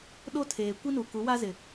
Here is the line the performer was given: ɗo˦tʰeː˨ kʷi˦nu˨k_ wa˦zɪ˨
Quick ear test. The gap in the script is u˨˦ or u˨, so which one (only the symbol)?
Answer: u˨˦